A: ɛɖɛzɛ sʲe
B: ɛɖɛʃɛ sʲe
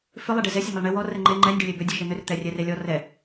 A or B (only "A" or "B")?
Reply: A